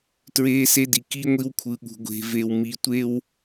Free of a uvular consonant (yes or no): yes